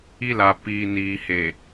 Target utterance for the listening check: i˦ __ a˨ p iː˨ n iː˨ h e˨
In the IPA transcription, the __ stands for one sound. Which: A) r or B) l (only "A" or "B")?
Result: B